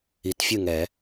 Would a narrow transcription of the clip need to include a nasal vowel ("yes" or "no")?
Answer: no